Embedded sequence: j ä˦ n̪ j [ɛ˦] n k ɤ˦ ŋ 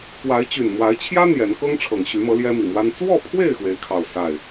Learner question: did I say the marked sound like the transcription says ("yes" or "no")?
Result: no